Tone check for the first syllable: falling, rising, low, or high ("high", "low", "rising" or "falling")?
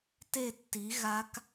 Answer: falling